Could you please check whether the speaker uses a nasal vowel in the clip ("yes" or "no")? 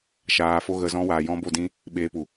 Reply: yes